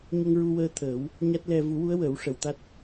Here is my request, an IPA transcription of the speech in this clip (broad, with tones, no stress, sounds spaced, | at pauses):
ɲ ə˧ ŋ ɹ u˧ w əː˧ t̪ʰ əː˨˩˦ w | ɲ a˦˥ t̚ l ɛ˧ v u˨˩˦ w u˧˥ ə̯ w əː˨˩˦ w ʂ ə˨˩ w t̪ a˦˥ t̚